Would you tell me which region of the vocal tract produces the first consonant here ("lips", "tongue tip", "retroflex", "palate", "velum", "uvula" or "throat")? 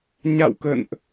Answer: palate